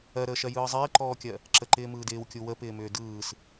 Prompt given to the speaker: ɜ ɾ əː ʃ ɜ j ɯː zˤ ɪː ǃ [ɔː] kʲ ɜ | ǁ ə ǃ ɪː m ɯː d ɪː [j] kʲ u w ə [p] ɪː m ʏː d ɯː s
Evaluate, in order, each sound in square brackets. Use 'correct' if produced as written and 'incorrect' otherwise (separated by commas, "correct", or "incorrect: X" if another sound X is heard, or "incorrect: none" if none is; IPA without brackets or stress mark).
correct, incorrect: w, correct